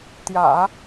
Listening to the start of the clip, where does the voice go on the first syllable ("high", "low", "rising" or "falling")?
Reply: low